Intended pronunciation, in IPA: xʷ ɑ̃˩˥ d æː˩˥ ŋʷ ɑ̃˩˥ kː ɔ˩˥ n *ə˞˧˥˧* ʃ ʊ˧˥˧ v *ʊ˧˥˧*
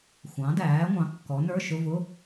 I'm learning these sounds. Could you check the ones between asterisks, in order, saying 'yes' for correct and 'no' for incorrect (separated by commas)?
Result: yes, yes